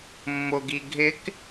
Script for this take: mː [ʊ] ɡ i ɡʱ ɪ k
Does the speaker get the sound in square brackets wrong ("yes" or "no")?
no